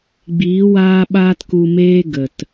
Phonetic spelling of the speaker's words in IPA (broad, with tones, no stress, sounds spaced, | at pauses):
ɡ͡b iː˨˦ w aː˦ ɓ aː˦ t k u˧ m eː˦ ɡ ə˨ t